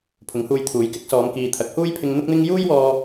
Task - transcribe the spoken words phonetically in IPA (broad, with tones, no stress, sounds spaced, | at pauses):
pʰ ʊ˨˥ ŋ h uː˧ j t̪ʰ uː˨˥ j k ɪ˨˥ k̚ s ɔː˨˧ m k iː˨ t̪ʰ ɐ˨˥ k̚ h uː˥ j pʰ ɪ˧ ŋ n̪ ʊ˥ k̚ n̪ ɪ˥ ŋ j uː˥ j w ɔː˧